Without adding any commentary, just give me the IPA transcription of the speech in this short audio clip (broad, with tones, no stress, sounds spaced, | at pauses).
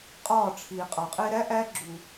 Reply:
qʼ ɒː˦˨ ʈ͡ʂʰ iː˨ qʼ ɒ˨ qʼ e˦ ɾ æ˦ ʔ æ˧ ɡ͡ǁ u˨